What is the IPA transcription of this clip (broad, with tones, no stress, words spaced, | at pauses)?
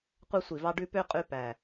qʷɑ˦sʷi˨˩vɑ˦ ɖʉ˦ pø˦ qʼʉ˦pæ˨˩